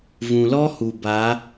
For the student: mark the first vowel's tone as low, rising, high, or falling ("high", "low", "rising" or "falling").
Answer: low